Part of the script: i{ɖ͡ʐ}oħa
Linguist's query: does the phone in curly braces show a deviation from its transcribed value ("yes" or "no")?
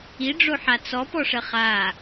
no